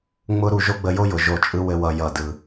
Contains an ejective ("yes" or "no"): yes